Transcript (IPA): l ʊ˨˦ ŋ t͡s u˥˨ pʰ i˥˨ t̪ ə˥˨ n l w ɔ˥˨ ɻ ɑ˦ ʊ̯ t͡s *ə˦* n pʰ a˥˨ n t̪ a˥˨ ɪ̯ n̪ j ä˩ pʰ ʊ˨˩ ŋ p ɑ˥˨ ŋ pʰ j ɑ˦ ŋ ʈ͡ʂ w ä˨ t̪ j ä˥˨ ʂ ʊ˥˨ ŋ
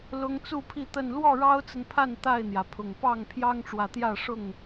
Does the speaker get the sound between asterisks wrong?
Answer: yes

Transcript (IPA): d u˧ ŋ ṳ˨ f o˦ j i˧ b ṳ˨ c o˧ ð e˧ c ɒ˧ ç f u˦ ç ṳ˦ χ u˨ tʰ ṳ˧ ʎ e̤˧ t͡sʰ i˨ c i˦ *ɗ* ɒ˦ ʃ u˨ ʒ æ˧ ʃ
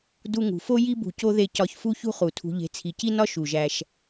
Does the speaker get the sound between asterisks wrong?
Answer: yes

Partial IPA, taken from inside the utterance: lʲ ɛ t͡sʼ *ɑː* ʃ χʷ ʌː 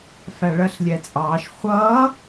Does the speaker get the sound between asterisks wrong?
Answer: no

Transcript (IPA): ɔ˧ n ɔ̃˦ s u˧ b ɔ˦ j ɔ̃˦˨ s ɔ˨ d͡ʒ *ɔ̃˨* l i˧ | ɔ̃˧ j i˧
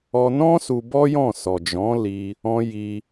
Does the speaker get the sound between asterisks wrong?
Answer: yes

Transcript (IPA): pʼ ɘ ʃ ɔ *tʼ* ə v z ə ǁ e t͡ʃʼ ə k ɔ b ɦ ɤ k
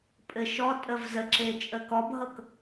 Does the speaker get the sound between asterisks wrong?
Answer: no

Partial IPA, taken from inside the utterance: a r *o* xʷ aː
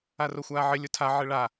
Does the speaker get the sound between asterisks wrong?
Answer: no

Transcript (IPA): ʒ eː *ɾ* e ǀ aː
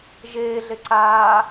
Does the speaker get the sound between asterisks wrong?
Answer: yes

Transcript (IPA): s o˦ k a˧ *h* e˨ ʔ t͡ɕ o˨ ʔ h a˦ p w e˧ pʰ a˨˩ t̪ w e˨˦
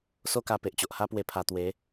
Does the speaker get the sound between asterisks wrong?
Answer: yes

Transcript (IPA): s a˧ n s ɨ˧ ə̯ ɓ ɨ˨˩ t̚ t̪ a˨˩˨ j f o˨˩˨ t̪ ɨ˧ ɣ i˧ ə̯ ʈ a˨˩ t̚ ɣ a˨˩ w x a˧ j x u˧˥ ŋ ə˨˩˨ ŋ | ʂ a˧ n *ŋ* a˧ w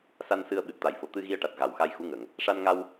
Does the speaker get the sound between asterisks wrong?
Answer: no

